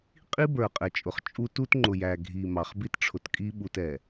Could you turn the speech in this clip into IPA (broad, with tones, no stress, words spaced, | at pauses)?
qʼi˦bə˞˨ qʼɛ˨t͡ʃʼʊ˨χ t͡ʃʼu˦ tu˦tŋ͡ǃʊ˨jæ˨ɡʱi˨ mɑ˨χ bi˦tʈ͡ʂʰʊ˨tkʼi˦ɓu˨t ɛ˨